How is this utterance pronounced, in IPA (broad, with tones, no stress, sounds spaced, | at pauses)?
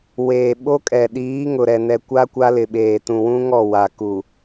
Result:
w eː˨ ɓ o˦ kʼ ɛ˨ ɗ iː˨˦ ŋ ʊ˨ ɾ ɛ˨ n ɛ˨ kʷ a˦ kʷ a˦ l ɪ˨ ɓ eː˨ t ũ˨ w ũ˦ ŋ ɔ˦˨ w a˨ k u˨